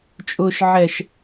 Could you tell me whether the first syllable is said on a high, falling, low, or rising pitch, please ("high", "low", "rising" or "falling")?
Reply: low